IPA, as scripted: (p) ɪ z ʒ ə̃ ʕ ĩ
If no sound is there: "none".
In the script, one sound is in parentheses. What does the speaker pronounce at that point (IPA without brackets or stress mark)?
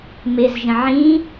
m